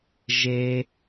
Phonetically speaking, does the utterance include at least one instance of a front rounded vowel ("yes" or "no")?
no